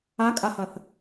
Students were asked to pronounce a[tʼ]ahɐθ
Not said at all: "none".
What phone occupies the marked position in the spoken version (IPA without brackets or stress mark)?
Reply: kʼ